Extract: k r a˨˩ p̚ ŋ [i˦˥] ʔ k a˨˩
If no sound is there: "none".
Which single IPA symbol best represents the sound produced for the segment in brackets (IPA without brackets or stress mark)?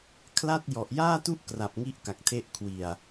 i˥˩